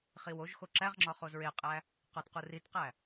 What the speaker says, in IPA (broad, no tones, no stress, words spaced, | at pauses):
χiwoʒxo ǁæʁŋ͡ǁɒ χozɹeqʼæ | qɒtqu ritqæ